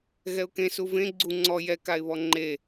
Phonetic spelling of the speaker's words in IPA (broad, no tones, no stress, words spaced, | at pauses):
ɣɛʊ̯kẽ suvẽ ɡ͡ǀu ŋ͡ǀɔ jɛ kaɪ̯βɔŋ͡ǃe